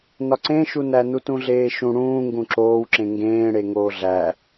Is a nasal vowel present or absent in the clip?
present